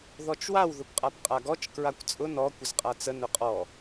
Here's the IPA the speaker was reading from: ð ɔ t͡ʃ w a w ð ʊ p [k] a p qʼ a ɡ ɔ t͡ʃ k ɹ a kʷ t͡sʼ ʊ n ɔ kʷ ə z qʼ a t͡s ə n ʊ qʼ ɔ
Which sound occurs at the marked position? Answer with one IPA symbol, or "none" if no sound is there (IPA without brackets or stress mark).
qʼ